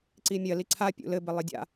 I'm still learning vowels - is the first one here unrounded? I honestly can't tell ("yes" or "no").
yes